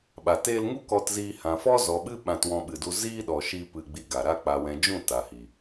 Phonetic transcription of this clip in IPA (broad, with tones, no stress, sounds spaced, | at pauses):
ɓ a˨ t eː˧ l ŋ u˦ k ɔ˧ t z iː˧ h ã˨ f ɔ˦ z ɔ˨ ɓ ɨ˦ ɓ ã˧ t w ɔ̃˧ ɓ ɨ˨ d u˧ z iː˦ ɗ ɔ˨ ʃ i˧ p ɨ˧ ɡ͡b i˧ ɡ a˨ ɾ a˦ k͡p a˨ w ɛ̃˨ d͡ʒ ũ˦˨ t a˨ h i˨